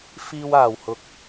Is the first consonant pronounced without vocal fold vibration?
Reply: yes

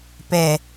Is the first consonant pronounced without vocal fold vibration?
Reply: yes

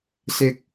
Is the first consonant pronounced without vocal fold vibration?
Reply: yes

